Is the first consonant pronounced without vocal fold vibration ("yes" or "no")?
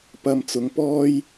yes